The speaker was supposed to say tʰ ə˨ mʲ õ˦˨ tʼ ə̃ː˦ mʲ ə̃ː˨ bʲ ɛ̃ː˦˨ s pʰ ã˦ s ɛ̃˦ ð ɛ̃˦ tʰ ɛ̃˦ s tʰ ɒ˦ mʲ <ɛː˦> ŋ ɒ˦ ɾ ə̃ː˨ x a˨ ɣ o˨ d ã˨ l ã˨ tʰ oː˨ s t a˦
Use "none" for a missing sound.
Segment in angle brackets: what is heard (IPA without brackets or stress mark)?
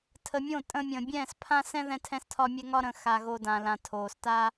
ɛ˦